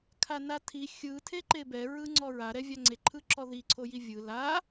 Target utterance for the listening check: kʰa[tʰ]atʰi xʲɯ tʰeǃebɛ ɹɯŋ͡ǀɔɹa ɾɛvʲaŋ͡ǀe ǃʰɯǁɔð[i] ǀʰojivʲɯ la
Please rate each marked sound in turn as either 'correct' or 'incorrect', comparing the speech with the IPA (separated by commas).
incorrect, correct